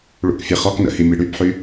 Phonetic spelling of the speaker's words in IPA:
ɭ ṵ k fʲ e χ ɔ k n ə̰ h i mʲ e ɽ y b ħ y

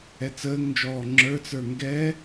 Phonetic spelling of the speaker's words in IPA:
ɛ t͡s əː ŋ n d͡ʒ ɔː ŋ͡ǁ ə˞ t͡s ə˞ ŋ ɡ ɛ

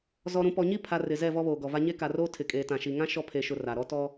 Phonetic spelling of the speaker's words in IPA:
z ɔ˨ ɾ ũ˨ p ɔ˨ ɲ i˦˨ pʰ a˨ r ɪ˨ z ɛ˦˨ v ɔ˦ β oː˨ ɡ ɔ˨ v a˦ ɲ e˦ k a˨ r oː˦ tʰ ɪ˨ kʼ eː˨ t ã˨ ʃ i˨ ŋ ã˦ ʃ ɔ˦ pʰ e˨ ʃ ʊ˨ r a˨ ɾ ɔ˦ t ɔ˦

